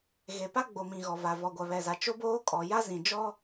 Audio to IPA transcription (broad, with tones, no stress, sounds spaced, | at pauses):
ɣ e˨ p a˦ ɡ͡b o˨ m ĩ˨ ɣ ɔ˨ v a˨ v ɔ˨ ɡʷ a˨ β ɛ˨ z a˨ t͡ʃ o˦ b oː˦ kʼ ɔ˨ j a˦ z ĩ˨ d͡ʒ ɔ˦